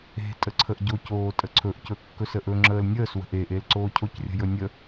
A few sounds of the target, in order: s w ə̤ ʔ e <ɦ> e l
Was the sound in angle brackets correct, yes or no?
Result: no